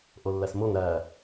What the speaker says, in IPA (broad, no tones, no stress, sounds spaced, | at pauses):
ʔ o lː æ s m o ŋ ɾ æ